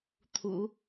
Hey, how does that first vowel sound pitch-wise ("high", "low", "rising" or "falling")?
low